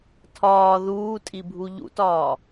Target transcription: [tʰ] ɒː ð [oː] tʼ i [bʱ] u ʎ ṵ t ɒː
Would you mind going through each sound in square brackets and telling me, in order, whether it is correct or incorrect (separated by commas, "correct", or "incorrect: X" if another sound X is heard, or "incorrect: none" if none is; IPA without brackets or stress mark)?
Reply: correct, incorrect: uː, correct